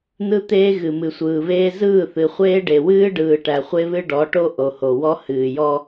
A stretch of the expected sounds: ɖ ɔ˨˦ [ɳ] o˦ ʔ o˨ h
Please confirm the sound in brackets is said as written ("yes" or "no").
no